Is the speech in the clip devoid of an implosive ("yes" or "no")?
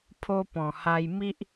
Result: yes